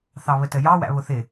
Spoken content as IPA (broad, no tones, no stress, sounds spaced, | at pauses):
θ ɑ β ə t ə j ɑ w æ̰ β ʊ θ ɪ